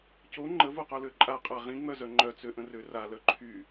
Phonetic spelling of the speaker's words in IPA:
co ŋ͡ǃəvoqolø ǃʼaqʼa ʁĩŋ͡mœzœ ŋ͡ǃœt͡søʔə̃rø ralœ ǃʰy

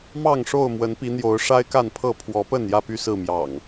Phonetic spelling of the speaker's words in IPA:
mɑ˥˨ŋʂo˥˨ʊ̯ mwə˨˦npi˨˦n̪jo˨˦ʊ̯ ʂa˦ɪ̯ka˥˨npʰɤ˥˨ pʰwɔ˨˦pə˥˨njä˥˨py˥˨ sɹ̩˥˨mjɑ̰˨˩ŋ

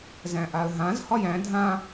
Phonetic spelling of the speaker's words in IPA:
zæ̃ʔaə̯ɦãz hɒjæ̃ dʱã

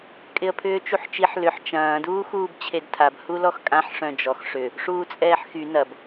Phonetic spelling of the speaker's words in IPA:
kʼɪə̯pʰʏːt͡ʃuħt͡ʃiħ lʏħ t͡ʃɐ̃ː duːxuːbt͡ɕʰedtʰab hulɔxkʼãħ ʂœ̃d͡ʒɔx ʂʏ | ʂuːt͡sʼɛːħxy nɐb

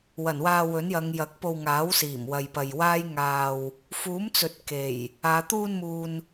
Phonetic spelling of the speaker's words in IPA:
wɐ˨˩nwaː˧wɵ˨˥njɐ˨˧ŋ jɐ˨˥k̚po˧wŋaː˨˥w siː˨˩mwɐ˨jpɐ˨j waː˥jŋaː˧w | fuː˨˥mt͡sɵ˨t̚ ke˨˩j | aː˨˧ t̪uː˧nmuː˨n

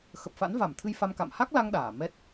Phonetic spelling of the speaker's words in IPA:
xə˨˩p̚fa̰˧˥nva˧˩mt̪ʰɨ˧j fa˧mka̰˧˨m ha˦˥k̚la˧ŋ ɗaː˧˩mɛ˦˥t̚

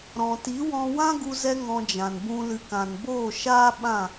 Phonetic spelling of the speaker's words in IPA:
ɾɔ̃˨ti˨˦wɔ̃˧ wã˦ɡu˧zɛ˧ ŋɔ̃˧d͡ʒã˨nbũ˧ lɨ˨kã˨nboː˦˨ʃaː˦ ɓã˦˨

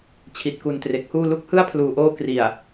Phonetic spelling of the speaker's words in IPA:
t͡ɕʰi˨˩t̚ku˨˩ntre˨˩k̚huː˥˩ lu˦˥k̚hɯ˥˩a̯pʰluː˨˩ʔoː˦˥ kri˨˩a̯

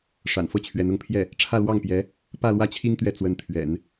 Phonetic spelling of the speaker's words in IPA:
ʂa̰˨˩nfɤ˥˩t͡ɕʰɥɛ˧˥n ʊ˧˥ŋpʰjɛ˥˩ | ʈ͡ʂʰä˥˧lwɑ˥˩ŋpjɛ˧˥ | pä˥˧lwä˥˩t͡ɕʰi˥ŋ t̪ɥɛ˥˩ t͡swə˧˥nt̪ʰɥɛ̰˨˩˦n

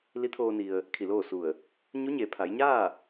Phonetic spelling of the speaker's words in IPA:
li˧˥t̪ʰoː˧ni˩ə̯ | kʰi˧˩loː˥˨su˧˩ə̯ | ɲu˧˥ɲe˩˧pʰa˩˧jɲaː˥˨

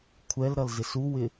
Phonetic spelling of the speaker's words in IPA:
kʷʰɛlɾʌlzɪs uwɪ

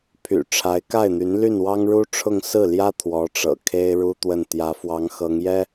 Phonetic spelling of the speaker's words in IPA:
pʰy̰˨˩ ʈ͡ʂʰa˧˥ɪ̯ka˥˩ɪ̯n̪y˧˥n ly˥˩nwɑ˥ŋɻu˥ʈ͡ʂʰʊ˥˧ŋ sɹ̩˥˩ljä˥ t̪ʰwɔ˧˥ʈ͡ʂɤ̰˨˩ kʰe˥ɪ̯ ɻu˥ t̪wə˥˩n t̪jä˧˥fwɑ˧˥ŋ xɤ˧˥ŋjɛ˥

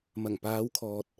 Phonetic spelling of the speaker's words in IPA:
mɐ˨˩ŋpaː˨˧wkʰɔː˨t̚

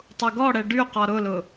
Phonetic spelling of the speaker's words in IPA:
tˤuɡɔɽɛ ɖyqɔ ɾʊlʊ

